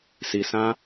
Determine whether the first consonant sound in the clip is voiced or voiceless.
voiceless